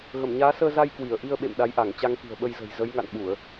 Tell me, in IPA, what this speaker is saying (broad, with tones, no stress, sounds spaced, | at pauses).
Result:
ɣ ə˧˩ m ɲ aː˨˦ s əː˧ z a˧ j k w i˧˩ ə̯ ʔ i˧ ə̯ ɓ ḛ˧˨ m ɗ a˨˦ j ʔ a˧˩ ŋ t͡ɕ a˧ ŋ k i̤˨˩ ə̯ ɓ ə˧ j z ə̤˨˩ j z ə˨˦ j ŋ a̰˧˨ n ɓ u˧˩˨ ə̯